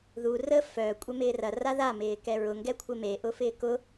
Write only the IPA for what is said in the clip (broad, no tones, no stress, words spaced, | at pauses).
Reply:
ðu rə fœ kʷʼɛmɪːrɐ raða mɪːkɛɹʊ ŋɡɛkʷʰɪme ʔʊfɪːkʊ